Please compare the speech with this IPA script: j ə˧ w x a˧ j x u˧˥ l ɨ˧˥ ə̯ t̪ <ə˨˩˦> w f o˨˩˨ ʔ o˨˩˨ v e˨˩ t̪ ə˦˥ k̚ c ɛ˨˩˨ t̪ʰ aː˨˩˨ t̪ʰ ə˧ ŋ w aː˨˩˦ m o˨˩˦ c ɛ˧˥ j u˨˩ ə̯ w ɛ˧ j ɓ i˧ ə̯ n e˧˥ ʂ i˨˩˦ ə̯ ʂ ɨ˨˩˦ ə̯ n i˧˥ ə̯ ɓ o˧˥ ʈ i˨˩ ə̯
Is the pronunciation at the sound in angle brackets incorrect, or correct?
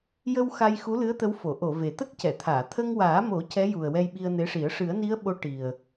incorrect